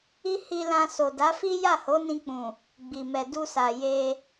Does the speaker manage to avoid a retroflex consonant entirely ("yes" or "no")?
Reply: yes